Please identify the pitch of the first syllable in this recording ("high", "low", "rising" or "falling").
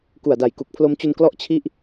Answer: low